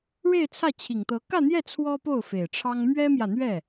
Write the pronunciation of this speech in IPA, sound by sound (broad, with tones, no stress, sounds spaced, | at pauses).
ɻ e˥˧ ɪ̯ t͡sʰ ä˥˩ t͡ɕʰ i˨˩ ŋ t̪ ɤ˧˥ k ä˥˧ n̪ j ɛ˥˩ t͡sʰ w ɔ˥ p o˥˩ ʊ̯ f e˨˩ ɪ̯ ʈ͡ʂʰ ɑ˥ ŋ m ɥ ɛ˥ m j ä˨ n̪ ɥ ɛ˥˩